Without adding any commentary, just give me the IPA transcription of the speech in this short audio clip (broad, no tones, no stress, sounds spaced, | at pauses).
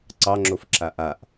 ǀ ɑ ŋ͡ǁ o f ǁ a ʔ a ʔ